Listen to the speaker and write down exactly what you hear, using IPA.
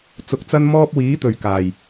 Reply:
t͡s ʊ˨ k̚ t͡s ɐ˥ n m ɔː˥ p̚ w iː˨˥ t̪ ɵ˨˩ ɥ k aː˨˩ j

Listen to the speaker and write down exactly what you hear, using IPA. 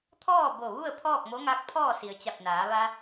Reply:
t̪ʰ ɔː˥˨ b o˧˩ ʋ u˥˨ ə̯ pʰ ɔː˥˨ k̚ m o˧˥ ŋ a˧˥ k̚ pʰ ɔː˥˨ s i˩ ə̯ t͡ɕ a˧˩ p̚ n aː˩˧ ʋ a˧

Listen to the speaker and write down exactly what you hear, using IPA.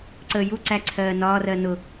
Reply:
ǀ əː j u ǀ æ ǀʰ ɜː n ɒː r ɜ n ʊ

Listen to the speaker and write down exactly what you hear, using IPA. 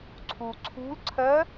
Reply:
ǀʰ u ǀʰ ṳ l ǀʰ ɜ

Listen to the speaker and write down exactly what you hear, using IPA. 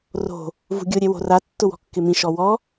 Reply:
r o̤ | v ṳ ɡʲ o ɾʲ ɛ w o̤ r a tː ʊ w ɔ̤ kː ɪ m ĩ ʃ ɔ w ɔ

